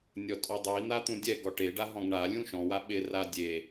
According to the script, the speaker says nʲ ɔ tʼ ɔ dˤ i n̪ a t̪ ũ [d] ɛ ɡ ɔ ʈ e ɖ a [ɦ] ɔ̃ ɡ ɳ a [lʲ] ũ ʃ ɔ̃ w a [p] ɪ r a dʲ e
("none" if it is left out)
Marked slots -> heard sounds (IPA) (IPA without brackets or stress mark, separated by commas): dʲ, ɦ, lʲ, ɓ